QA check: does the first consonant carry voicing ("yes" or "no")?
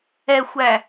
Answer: no